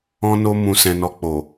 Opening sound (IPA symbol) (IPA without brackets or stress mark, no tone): ɔ̃